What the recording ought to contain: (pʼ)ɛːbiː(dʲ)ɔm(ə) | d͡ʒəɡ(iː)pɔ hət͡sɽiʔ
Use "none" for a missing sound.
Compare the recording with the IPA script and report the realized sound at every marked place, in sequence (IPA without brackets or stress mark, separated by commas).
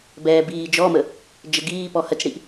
b, d͡ʒ, ə, iː